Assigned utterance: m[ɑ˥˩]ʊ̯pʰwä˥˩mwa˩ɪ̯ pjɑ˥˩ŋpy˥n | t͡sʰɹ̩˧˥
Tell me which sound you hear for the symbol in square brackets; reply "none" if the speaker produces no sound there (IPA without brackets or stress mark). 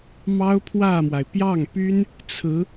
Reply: ɑ˥